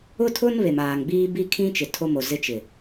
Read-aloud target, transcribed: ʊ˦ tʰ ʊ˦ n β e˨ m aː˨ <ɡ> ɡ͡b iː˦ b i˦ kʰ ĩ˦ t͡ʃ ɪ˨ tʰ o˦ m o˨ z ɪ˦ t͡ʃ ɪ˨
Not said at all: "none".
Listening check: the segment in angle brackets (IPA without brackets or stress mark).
ŋ